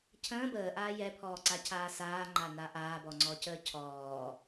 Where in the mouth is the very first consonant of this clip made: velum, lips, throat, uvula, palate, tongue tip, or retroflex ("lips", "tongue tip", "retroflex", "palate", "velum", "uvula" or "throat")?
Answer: palate